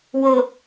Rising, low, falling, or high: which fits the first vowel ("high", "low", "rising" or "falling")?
low